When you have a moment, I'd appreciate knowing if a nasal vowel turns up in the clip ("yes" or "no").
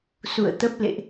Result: no